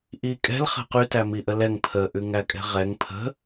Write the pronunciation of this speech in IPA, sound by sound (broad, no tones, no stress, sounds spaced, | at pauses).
ʔ i kʼ ɛ̤ l χ ɛ̤ q y t æ m i ʔ ə l ɛ ŋ pʰ ə ʔ ʉ ŋ æ kʼ ɛ̤ ʁ ɛ ŋ pʰ ə̤